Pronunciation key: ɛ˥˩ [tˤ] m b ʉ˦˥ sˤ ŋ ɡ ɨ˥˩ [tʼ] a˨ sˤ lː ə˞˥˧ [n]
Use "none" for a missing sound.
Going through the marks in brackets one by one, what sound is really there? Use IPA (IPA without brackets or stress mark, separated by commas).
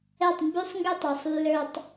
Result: tˤ, tˤ, tˤ